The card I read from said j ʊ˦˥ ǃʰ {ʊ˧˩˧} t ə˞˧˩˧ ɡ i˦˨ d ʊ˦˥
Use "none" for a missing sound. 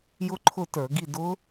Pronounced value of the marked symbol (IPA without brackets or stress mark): ʊ˦˨